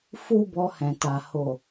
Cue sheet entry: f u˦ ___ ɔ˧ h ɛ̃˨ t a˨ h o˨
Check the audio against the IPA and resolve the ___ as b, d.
b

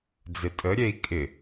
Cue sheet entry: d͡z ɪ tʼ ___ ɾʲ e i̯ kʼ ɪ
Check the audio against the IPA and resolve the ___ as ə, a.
ə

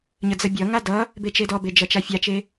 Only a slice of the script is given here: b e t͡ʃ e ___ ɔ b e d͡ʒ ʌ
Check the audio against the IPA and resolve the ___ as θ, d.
d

